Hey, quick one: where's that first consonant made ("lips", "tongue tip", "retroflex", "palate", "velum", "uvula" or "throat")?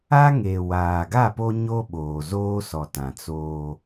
velum